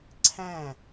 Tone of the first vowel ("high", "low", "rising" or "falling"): falling